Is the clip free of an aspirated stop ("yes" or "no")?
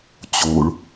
yes